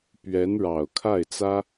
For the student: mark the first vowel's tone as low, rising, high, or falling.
rising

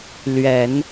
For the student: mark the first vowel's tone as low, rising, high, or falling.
low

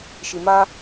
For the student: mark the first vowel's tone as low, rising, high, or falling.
low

